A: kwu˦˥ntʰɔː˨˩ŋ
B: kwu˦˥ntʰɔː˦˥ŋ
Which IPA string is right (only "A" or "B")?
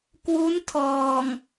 A